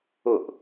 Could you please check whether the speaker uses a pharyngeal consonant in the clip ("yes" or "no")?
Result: no